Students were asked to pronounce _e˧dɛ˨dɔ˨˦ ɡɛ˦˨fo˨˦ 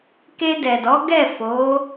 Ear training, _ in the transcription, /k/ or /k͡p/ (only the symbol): k